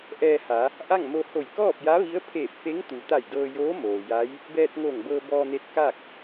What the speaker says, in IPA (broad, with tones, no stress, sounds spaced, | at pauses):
ʔ ɛː˧ h a˩˧ | ʔ a˥˨ ŋ m o˧ h o˧˩ j k ɔː˥˨ p̚ j a˧˥ ʋ i˧˥ ə̯ pʰ eː˧˩ p̚ f e˧˥ ŋ t̪ u˩ t̪ a˧˩ j d ɤː˧ j oː˧˥ m oː˩ j a˧˥ j | b ɛː˧ t̚ ŋ o˧˩ ŋ b ɤː˧ b ɔː˧ n e˧ t̚ k a˥˨ k̚